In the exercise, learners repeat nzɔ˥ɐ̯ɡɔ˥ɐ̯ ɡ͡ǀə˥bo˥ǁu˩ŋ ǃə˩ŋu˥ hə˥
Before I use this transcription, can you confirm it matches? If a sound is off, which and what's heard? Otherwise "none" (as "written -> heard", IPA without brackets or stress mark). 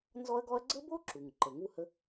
none